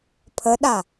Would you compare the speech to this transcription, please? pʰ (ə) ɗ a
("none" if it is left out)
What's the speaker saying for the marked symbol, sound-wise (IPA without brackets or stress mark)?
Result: ə